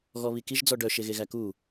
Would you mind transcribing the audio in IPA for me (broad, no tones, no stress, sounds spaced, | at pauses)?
ɣ ɔ β i k i ʒ d͡z ɔ ɖ œ ʃ e ɣ e ɣ æ k u